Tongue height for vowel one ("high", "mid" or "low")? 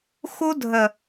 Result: high